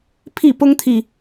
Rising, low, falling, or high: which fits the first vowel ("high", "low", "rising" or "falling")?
falling